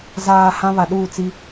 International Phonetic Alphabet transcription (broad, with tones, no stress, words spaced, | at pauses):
zaː˨ hã˦βa˨ɗuː˦˨ t͡si˦